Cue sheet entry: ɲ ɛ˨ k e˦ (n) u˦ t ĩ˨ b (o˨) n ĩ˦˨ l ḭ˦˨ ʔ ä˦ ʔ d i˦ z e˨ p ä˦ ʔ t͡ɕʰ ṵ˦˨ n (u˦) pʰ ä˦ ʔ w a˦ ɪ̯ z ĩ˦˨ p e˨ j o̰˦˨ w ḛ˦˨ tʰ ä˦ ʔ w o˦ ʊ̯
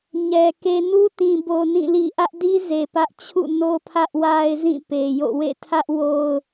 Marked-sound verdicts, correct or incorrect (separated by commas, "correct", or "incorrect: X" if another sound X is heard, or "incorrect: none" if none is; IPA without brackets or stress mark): correct, correct, incorrect: o˦